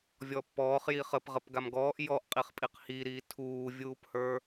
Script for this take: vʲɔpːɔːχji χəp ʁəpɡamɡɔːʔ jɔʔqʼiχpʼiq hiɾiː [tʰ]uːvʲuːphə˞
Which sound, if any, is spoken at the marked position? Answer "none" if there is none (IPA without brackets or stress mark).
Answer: tʰ